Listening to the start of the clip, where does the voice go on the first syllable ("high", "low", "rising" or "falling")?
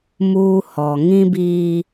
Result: high